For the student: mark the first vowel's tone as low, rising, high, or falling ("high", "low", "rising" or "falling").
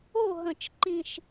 falling